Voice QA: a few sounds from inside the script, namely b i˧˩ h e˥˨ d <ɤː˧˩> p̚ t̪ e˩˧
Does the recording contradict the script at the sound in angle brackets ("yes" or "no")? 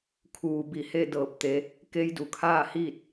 no